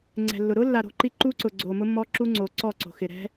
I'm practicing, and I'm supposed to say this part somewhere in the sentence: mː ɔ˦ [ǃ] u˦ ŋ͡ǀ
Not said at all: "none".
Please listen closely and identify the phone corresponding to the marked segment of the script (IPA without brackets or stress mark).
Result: ǁ